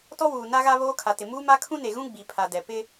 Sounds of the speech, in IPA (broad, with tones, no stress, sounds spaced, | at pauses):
t ɔ˦ w uː˨ n a˦ ɣ a˦ β oː˦ kʰ a˨ t ɪ˨ m uː˦ m a˦ kʰ ũ˦ n e˨ ɣ ũ˦ ɡ͡b i˨ pʰ a˨ d ɛ˨ p ɪ˦